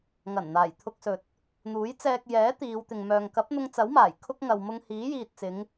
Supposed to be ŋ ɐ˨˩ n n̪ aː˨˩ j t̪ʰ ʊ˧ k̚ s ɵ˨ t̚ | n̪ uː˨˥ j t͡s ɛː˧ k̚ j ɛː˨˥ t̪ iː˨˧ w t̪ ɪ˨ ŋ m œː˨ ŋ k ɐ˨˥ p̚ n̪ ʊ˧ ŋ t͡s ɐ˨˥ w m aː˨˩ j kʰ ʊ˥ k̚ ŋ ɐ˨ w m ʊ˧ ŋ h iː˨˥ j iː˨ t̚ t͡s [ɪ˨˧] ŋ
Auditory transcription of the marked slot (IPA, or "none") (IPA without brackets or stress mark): ɪ˨˧